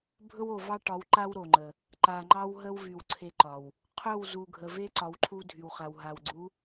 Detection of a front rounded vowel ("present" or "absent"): present